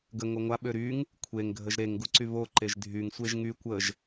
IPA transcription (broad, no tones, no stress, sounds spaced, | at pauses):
ɡ ə ŋ o ŋʷ a ɓ ø ɾ y ŋ | kʷʰ e ŋ ɡʱ ə ʒ ɾ e ŋ ɡ u ǀ y β o ǃ e ʒ dʱ y ŋ sʷ e ʒ ŋ y kʷ ə ʒ